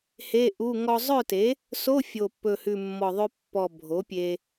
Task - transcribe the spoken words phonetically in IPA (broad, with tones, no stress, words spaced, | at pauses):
he˧˥˧ʔu˧˥˧ ŋɔ˧zˤœ˥˨te˩˥ | so˧˥˧fʲo˨˩pːɵ˨˩hʉ˨˩ mːɔ˨˩ðˤø˧pːɔ˨˩ bʱo˩˥pʲe˧